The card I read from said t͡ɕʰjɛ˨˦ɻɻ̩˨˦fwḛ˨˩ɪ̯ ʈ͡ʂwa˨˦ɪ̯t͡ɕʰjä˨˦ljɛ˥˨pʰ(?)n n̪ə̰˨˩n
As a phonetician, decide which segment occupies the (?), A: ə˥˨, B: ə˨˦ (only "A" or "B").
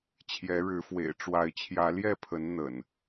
B